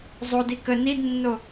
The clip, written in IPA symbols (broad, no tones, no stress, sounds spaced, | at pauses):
zˤ o d i k ə n i d nː o